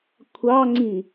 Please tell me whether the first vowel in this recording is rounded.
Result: no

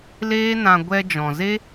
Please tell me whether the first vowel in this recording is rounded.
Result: no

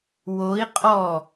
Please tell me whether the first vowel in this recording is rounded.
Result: yes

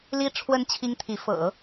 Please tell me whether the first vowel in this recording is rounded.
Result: no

